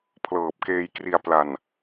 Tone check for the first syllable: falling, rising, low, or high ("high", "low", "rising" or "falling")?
low